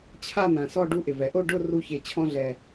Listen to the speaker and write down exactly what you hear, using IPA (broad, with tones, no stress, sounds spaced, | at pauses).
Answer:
t͡ɕʰ a˥˧ n̪ ã˩ s ɔ˥˧ ɖ u˧ ʔ ɪ˩ v ɛ˩ ʔ o˥˧ ɖ ʊ˥˧ r u˧ ç e˩ t͡ɕʰ ɔ̃˧ ɮ ɛ˩